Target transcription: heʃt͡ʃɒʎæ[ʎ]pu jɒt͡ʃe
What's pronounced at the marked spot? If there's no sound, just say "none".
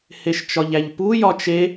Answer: ʎ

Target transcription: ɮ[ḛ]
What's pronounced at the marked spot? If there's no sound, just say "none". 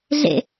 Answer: ḛ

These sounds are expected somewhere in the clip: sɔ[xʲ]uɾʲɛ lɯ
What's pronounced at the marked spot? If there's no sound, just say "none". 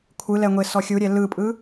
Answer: xʲ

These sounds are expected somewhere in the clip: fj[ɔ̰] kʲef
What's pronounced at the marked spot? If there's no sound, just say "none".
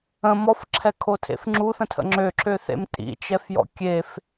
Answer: ɔ̰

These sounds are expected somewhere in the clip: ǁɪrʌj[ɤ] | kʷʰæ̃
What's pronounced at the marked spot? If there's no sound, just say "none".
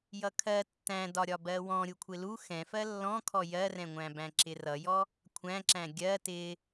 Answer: ɔ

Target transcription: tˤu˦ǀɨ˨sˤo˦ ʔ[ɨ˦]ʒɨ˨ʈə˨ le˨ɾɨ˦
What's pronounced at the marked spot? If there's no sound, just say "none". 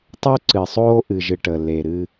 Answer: ɨ˨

